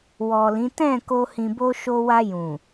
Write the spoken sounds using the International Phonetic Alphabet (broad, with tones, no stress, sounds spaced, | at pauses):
w ɔ˨ l ĩ˨˦ t ɛ̃˦˨ k o˧ h ĩ˨ b o˧ ʃ o˧ w a˧ j ũ˨